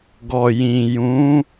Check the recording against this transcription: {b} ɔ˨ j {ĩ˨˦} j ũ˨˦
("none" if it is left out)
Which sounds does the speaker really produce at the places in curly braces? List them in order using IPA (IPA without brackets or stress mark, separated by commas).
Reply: ɡ, ĩ˨